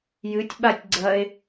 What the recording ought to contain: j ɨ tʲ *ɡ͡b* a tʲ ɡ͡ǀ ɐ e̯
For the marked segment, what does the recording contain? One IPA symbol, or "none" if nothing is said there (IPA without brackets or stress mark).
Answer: ɓ